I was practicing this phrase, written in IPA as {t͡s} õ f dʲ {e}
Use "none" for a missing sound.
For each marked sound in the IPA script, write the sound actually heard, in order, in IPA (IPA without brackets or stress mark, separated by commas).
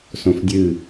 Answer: s, ɨ